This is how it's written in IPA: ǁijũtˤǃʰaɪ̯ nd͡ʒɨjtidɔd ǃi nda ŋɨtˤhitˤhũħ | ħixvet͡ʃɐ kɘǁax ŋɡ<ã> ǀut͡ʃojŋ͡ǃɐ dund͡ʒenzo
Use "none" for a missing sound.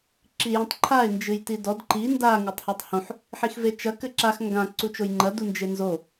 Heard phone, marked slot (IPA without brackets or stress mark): ã